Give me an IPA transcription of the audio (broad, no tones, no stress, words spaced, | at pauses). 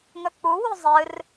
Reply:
ŋɵk͡puwu zˤɨr